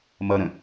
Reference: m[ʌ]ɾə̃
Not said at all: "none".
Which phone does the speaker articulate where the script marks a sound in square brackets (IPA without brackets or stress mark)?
ʌ